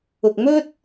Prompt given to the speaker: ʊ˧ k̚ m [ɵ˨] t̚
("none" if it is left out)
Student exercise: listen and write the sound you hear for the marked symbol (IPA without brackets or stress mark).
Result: ɵ˥